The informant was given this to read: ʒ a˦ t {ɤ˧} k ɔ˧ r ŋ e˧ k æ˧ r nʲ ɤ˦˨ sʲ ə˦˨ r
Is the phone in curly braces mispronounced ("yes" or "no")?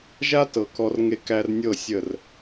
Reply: yes